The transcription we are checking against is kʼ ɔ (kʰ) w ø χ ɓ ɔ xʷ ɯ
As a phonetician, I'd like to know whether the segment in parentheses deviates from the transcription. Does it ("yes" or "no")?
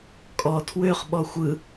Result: yes